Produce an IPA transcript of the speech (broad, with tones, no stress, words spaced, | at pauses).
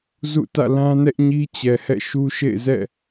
zṵ˦˨ tä̰˦˨lã˦nɛ˦ʔɲi˦ t͡ɕɛ˨hɛ̰˦˨ʃu˦ ʃḛ˦˨ɪ̯zɛ̰˦˨